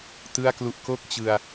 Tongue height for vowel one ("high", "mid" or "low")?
high